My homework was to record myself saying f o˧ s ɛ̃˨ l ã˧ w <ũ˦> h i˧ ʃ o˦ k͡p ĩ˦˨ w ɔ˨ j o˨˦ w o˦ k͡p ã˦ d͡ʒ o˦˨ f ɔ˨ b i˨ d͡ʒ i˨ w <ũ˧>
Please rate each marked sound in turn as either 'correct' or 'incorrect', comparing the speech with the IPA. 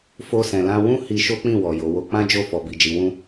correct, correct

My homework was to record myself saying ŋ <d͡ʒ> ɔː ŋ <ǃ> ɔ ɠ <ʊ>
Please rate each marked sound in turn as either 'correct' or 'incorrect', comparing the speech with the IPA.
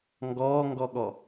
incorrect: ɡ, incorrect: ɡ, incorrect: ɔ

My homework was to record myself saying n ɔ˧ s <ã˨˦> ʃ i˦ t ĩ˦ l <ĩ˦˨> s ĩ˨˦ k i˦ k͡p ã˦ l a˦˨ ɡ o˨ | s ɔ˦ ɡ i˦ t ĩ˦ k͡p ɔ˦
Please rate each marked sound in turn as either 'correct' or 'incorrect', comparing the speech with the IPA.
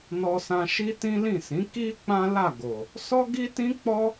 incorrect: ã˧, correct

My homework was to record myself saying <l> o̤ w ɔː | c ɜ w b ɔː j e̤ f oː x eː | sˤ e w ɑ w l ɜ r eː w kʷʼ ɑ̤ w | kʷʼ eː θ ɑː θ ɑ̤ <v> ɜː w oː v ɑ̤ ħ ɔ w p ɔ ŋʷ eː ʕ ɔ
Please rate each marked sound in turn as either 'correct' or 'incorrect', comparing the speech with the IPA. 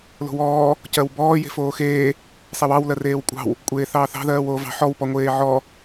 correct, incorrect: ð

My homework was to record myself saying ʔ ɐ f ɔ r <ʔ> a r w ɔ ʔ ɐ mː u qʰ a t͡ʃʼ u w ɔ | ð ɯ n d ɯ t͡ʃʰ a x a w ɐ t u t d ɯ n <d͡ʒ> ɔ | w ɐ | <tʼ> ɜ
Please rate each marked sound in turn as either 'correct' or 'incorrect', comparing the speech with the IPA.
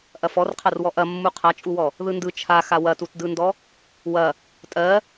incorrect: qʰ, incorrect: d, correct

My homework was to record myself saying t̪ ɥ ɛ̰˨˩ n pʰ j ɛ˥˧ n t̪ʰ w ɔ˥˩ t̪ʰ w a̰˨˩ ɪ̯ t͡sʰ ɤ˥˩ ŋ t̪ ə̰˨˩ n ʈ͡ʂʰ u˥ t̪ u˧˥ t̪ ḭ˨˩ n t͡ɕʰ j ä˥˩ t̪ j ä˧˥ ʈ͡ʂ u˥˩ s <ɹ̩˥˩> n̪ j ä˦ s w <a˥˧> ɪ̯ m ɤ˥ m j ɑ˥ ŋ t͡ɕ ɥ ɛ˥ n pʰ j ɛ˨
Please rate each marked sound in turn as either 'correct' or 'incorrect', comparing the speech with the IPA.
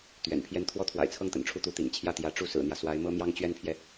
incorrect: ɹ̩˨˩, incorrect: a˧˥

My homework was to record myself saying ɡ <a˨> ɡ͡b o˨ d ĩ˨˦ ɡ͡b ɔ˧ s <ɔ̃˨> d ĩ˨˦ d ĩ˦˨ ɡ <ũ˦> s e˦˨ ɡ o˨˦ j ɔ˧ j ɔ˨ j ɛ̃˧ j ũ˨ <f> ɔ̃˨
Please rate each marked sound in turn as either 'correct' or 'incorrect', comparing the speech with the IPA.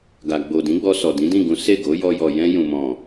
correct, incorrect: ɔ˨, incorrect: ũ˨˦, incorrect: m

